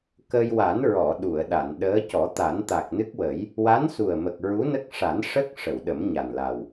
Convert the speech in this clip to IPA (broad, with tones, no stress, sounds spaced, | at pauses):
k ə˧ j w a˨˩˦ n ɹ ɔ˨˩˨ ɗ u˨˩˨ ə̯ ɗ a˨˩˨ n ɗ əː˧˥ c ɔ˨˩˦ t̪ a˨˩˦ n t̪ a˨˩ k̚ n ɨ˦˥ k̚ w ə˨˩˦ j | w a˧˥ n s u˨˩ ə̯ m ə˨˩ k̚ ɹ u˧˥ n ə˦˥ k̚ ʂ a˨˩˦ n ʂ ə˦˥ k̚ ʂ ə˨˩˨ w ɗ ə˨˩˦ m ɲ a˨˩ n l a˨˩ w